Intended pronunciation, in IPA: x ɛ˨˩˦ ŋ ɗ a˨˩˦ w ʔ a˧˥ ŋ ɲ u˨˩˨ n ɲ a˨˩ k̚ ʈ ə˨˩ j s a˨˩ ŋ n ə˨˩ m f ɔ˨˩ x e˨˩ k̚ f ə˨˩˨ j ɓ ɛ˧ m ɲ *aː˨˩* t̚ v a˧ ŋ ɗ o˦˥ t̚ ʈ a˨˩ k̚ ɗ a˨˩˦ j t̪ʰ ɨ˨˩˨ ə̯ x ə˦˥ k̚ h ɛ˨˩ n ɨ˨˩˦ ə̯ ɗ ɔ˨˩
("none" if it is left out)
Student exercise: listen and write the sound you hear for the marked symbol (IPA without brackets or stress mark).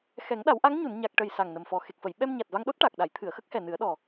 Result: a˨˩